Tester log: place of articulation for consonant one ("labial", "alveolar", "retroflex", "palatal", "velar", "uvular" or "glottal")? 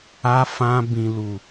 labial